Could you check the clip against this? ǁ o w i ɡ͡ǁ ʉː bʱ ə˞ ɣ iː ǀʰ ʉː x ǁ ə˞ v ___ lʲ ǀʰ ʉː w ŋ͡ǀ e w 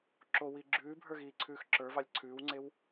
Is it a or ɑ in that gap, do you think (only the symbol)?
ɑ